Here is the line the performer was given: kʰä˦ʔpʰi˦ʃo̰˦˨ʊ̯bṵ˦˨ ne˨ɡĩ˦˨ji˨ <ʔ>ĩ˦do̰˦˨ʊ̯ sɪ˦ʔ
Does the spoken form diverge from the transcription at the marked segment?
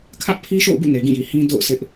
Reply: yes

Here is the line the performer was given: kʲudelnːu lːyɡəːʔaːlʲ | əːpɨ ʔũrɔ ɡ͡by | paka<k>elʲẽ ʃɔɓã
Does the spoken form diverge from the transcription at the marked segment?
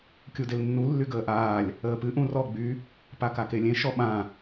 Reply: no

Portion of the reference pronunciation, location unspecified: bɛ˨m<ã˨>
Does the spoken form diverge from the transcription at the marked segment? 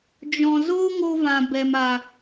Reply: yes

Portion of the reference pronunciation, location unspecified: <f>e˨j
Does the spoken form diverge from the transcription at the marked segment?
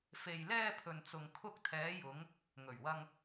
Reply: no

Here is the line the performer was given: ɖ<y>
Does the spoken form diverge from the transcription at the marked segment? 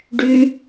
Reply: no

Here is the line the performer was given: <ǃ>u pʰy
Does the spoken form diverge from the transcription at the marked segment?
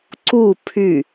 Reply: yes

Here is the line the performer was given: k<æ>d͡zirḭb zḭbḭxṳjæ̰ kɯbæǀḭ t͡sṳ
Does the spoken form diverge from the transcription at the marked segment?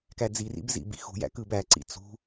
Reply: no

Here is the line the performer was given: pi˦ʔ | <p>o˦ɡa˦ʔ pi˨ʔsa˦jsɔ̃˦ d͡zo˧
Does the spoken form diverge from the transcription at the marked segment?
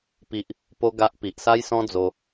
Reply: no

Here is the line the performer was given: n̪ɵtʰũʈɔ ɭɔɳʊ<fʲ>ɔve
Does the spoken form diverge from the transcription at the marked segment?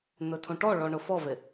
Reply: yes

